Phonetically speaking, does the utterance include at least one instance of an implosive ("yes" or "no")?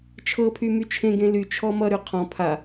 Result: no